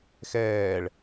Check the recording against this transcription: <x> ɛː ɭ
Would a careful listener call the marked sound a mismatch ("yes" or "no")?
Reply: no